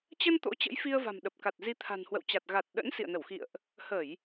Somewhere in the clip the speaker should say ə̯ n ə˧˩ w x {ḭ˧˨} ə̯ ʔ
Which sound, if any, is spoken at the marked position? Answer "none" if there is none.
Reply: ḭ˧˨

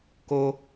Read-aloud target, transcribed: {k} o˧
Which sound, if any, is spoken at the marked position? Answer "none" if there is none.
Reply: k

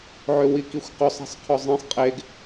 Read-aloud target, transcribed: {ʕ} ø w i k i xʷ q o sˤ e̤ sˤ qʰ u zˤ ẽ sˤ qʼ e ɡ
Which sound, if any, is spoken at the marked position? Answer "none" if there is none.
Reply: ʕ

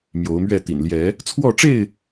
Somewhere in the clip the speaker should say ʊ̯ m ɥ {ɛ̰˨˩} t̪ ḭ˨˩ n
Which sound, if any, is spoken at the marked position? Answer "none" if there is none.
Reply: ɛ˥˨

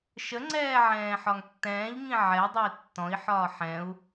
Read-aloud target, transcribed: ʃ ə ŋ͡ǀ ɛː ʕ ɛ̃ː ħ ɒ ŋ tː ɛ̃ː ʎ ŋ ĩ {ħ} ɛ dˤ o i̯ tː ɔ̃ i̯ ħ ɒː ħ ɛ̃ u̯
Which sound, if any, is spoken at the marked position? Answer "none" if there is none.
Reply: ʕ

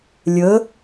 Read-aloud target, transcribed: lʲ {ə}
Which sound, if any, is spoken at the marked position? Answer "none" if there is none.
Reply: ə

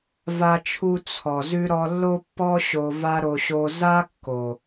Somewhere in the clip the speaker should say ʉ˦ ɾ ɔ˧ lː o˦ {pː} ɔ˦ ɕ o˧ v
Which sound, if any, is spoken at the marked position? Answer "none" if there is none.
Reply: pː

